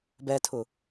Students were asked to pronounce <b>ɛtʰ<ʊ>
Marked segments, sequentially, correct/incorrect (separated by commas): correct, correct